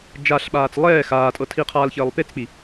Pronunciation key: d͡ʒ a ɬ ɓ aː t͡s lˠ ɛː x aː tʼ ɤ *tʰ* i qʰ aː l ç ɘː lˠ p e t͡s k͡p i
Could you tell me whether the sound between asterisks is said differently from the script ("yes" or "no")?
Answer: no